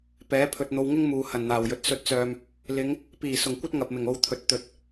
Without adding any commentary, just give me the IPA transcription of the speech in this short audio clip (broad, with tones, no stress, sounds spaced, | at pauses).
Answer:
p ɛː˨˥ pʰ ɵ˨ t̚ n̪ o˧ w ŋ ɪ˥ ŋ m uː˨ h ɐ˨˩ n n̪ aː˨˩ w j ɵ˨˥ t̚ s ɵ˧ t̚ t͡s œː˨ m | l ɪ˨˧ ŋ | p iː˨˩ s ʊ˨˩ ŋ kʷ ɐ˥ t̚ ŋ ɐ˨ p̚ m ɪ˨˩ ŋ o˧ w t̪ʰ ɵ˨ t̚ t̪ ɵ˨ t̚